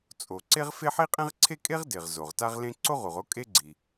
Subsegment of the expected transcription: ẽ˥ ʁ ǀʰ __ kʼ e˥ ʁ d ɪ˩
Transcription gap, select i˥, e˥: e˥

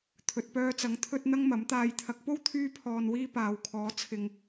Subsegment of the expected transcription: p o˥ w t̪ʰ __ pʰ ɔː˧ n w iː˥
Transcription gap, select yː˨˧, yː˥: yː˥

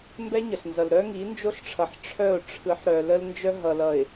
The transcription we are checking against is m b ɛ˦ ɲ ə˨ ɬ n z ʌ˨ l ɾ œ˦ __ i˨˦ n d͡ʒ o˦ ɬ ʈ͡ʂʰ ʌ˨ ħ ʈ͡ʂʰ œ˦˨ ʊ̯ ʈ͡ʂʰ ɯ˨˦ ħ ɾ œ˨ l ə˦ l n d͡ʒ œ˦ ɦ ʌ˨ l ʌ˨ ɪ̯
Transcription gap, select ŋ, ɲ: ŋ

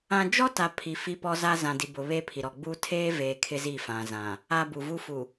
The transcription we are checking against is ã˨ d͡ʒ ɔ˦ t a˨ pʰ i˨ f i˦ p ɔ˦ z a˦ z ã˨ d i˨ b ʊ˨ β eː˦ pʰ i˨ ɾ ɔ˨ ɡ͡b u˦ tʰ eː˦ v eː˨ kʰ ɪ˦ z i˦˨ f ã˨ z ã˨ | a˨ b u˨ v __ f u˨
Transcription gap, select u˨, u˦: u˦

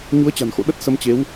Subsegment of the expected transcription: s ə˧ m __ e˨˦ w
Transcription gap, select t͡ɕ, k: t͡ɕ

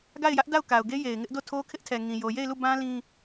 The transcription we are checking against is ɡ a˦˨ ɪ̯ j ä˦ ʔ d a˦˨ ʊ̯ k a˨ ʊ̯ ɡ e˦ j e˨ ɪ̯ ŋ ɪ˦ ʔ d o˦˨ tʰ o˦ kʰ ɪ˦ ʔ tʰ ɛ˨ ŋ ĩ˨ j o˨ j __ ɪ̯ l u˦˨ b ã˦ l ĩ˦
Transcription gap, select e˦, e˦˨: e˦˨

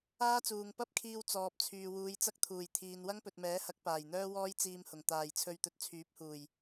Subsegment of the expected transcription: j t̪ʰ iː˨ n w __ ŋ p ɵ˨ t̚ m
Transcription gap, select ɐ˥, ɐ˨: ɐ˥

